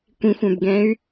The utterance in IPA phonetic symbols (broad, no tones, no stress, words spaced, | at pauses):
kʷĩxʷœ̃bɡɛ̃y̯